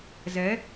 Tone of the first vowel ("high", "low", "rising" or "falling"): rising